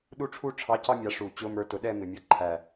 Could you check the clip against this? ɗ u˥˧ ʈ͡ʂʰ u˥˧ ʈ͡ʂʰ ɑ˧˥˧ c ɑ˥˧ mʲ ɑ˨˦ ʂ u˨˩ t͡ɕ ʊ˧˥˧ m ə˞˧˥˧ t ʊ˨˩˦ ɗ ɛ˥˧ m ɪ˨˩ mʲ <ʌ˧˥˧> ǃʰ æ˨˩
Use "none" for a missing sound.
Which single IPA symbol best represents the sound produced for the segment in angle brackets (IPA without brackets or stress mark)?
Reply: ʌ˧˥˧